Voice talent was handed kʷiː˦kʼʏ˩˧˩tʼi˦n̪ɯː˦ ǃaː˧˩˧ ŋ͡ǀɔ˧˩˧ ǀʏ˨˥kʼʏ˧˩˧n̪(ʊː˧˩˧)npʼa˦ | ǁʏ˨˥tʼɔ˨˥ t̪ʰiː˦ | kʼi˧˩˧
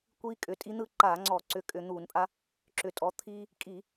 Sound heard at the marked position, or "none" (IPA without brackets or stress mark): uː˧˩˧